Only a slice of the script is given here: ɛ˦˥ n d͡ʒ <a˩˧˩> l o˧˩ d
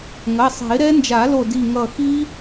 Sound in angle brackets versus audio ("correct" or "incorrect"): incorrect